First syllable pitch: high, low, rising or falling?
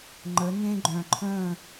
rising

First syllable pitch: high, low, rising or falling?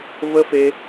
high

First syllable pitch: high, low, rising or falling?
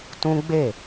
high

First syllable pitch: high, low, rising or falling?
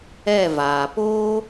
falling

